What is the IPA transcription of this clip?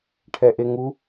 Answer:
ʈʰɛʔeŋu

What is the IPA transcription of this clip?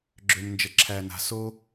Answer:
ɡ͡ǁø˨mnd͡ʒə˨ǁʰæ˨na̤˨ so˦

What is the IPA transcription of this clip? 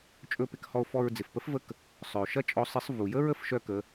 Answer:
t͡ʃʼɵ˧pɪ˧khɔ˧o̯ fɔ˧ɹ d͡zɪ˩fpə˧˥fvə˧˥k | sˤœ˩o̯ʃɐ˥t͡ʃʼɔ˧˥sˤɪ˧˥sˤ vu˩jə˥ɹ ə˥fʃœ˥kə˩˧

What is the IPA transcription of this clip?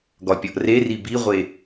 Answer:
ɡɒpʲɒʔreri biʁʷe

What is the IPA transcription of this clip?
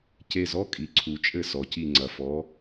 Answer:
ce˧˩zɔ˦ kʼi˩ǀʰu˩˧t͡ʃʼɘ˧˩ sɔ˩ci˧˩ ŋ͡ǀɐ˩fɔ˩˧

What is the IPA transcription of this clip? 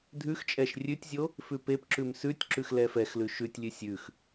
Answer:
dʱʉxt͡ʃʼɛʃ rʲʉtʲzʲo | fʉpepǁʉm sʉtʲ ǁʉxlɛfɛxlʉ ʃʉtʲlʲʉ sʲʉx

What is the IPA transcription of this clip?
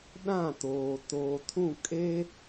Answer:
ɗã˦˨toː˨ toː˨tʰũ˦˨ kʼe˦

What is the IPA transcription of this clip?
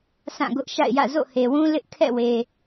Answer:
sã˦˨ɡʊ˦ʔʃa̰˦˨ɪ̯jä̰˦˨ zo̰˦˨he˨wũ˦ lɪ˦ʔ kʰɛ̰˦˨we˨

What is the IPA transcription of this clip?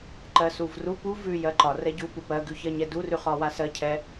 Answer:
ǃɜsuvru pu vʉ jɜǃɒ rɛɟupu pɜɡʉçɜɲɛ durʉχɒwa sɜ cʰɛ

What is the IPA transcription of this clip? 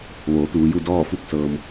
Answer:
ʋoː˩˧t̪uː˩˧ju˥˨ dɔː˥˨ fu˥˨k̚ sɤː˧m

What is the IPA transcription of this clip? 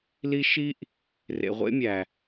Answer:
li˦ ʃi˦ʔ | rḛ˨ʁʷḛ˦mʲæ˨

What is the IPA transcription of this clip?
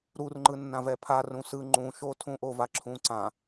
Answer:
ɾurŋ͡ǃɯ nːãvɛpʰa rũsɯ ŋ͡ǃũʃotʰũʔo vaǁʰũǀã

